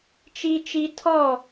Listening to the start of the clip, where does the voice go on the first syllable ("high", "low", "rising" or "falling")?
high